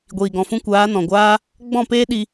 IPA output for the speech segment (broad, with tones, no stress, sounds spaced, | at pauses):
ɡʷ iː˨ ɡ ɔ̃˨ f ũ˦ kʷ aː˨˦ n ɔ̃˨ ɡʷ aː˦ | ɡ͡b ɔ̃˦˨ p eː˦ ɗ i˧